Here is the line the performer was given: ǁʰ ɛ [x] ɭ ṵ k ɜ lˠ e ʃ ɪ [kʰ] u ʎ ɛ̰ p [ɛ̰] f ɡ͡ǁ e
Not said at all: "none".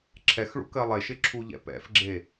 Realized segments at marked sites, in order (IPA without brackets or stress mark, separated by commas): x, ǁʰ, ɛ̰